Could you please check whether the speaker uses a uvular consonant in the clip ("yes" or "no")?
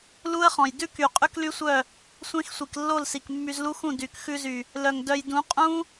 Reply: yes